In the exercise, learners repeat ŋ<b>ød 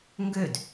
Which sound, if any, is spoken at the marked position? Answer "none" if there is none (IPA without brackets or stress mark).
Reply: ɡ